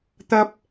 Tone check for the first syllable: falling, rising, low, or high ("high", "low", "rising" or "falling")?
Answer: high